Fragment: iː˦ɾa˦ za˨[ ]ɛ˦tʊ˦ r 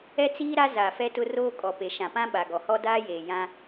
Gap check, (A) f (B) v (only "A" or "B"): A